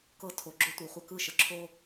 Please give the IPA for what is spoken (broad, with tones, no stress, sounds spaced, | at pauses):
k ɤ˦ tʰ o˨ ɡ͡ǁ o˦ tʷ ɯ˨ χʷ ə˦ k ɯ˦˨ ʃ ə˨ ǁʰ o˦